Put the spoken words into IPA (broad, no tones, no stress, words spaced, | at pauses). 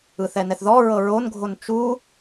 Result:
ɯθɛnɛθðɔ ɹɤɹonɡʱon t͡ʃu